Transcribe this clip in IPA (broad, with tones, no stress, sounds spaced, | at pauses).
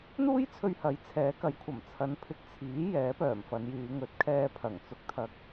n̪ uː˥ j t͡sʰ ɵ˧ ɥ h ɐ˨˥ j t͡sʰ ɛː˨˥ k ɐ˨˥ j kʷʰ ɐ˨˩ m t͡sʰ ɐ˨˧ n pʰ ɪ˨˥ k̚ t͡sʰ iː˨˥ j ɛː˨˥ p œː˨˩ m f ɐ˨˧ n j yː˨˧ ŋ ɵ˨˥ t̚ kʰ ɛː˧ pʰ ɐ˨˩ ŋ t͡s ʊ˧ k̚ t̪ʰ ɐ˧ k̚